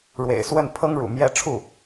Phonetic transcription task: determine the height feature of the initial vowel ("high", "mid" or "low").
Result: mid